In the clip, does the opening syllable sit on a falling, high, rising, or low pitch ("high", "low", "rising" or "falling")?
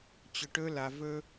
low